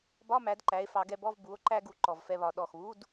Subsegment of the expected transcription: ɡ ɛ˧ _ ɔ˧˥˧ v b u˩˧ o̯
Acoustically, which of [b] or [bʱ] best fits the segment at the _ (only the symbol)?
b